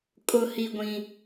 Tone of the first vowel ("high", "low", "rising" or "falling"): high